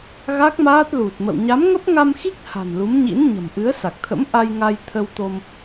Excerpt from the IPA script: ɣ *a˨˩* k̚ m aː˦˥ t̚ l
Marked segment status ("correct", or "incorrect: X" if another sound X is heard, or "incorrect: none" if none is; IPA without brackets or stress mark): incorrect: a˦˥